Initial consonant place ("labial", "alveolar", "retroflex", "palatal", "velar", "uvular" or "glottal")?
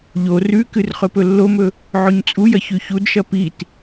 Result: palatal